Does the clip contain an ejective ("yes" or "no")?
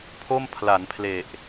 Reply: no